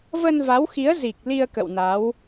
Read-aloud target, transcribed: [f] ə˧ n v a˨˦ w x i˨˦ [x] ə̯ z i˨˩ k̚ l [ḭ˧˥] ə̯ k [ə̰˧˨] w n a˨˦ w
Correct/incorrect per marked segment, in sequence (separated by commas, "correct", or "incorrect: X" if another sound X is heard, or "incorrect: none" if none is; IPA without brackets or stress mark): incorrect: v, incorrect: none, incorrect: i˧, correct